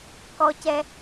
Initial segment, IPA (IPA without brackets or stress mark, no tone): k